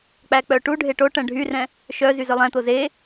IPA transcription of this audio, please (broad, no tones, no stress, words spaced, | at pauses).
k͡pæk͡pœʈuɖʱe ʈo ʈɛ̃ɖʱyrɛ̃ | ʃœ zyzœlˠɛ̃t̪o ze